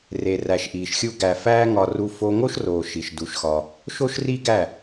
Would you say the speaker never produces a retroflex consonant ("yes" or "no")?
yes